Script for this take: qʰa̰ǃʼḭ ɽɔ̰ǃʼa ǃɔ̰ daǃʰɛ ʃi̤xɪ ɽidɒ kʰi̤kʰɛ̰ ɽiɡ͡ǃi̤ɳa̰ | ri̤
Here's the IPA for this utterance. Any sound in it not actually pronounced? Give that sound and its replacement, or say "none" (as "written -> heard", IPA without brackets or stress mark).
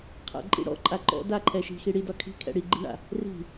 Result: ɪ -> i